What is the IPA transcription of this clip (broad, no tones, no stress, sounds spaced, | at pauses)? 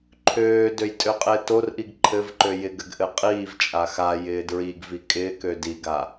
ǃʰ øː d ø j tʼ ø qʼ ɪː t o r ʔ i ɡ ǃʰ ɘ v ǃ ø j ɪ ɡ ɘ ɡ ʔ ɘ qʼ iː v t͡ʃʼ a x a j ɪː d ɹ i ɡ v i kʼ ɪː k ø d i ɡ a